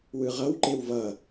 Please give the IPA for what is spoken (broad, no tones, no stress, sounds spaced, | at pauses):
w ɯ ʁ ʌ w ǃ e w v ʌ